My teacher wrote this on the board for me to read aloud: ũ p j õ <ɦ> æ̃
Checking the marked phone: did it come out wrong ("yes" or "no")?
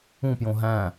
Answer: no